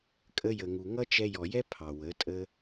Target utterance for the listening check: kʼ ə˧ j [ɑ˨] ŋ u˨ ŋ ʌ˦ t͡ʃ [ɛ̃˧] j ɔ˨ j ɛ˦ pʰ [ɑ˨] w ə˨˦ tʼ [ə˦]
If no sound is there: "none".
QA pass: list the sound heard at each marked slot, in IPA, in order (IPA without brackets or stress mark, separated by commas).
ə˨, ɛ˧, ɑ˨, ə˦